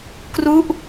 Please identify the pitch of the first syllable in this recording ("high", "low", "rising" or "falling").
falling